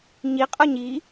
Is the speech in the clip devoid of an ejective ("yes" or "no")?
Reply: no